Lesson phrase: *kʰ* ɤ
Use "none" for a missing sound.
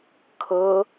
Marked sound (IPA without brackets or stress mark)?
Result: kʰ